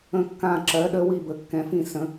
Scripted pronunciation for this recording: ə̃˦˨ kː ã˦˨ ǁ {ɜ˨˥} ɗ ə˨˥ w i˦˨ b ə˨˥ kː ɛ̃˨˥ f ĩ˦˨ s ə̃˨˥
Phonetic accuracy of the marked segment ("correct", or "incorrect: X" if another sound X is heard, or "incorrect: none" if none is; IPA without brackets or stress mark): correct